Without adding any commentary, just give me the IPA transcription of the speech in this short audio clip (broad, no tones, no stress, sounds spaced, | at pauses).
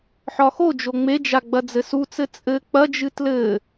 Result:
ħ ɒ x o d͡ʒ o ŋ͡m e d͡ʒ a ɡ͡b ɐ d͡z ɘ s u t͡s ɘ t͡sʼ ɘ k͡p ɐ d͡ʒ ɨ t l ɘ